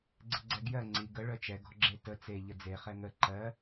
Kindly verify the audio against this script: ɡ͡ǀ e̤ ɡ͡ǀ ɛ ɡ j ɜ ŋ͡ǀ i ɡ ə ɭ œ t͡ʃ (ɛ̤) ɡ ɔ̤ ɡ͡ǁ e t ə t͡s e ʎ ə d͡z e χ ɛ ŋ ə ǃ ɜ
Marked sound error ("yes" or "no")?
yes